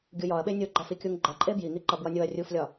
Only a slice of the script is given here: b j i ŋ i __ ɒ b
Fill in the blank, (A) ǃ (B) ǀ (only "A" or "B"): A